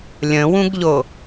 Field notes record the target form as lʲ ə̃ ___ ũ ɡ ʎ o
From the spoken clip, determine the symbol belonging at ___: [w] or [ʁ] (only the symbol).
w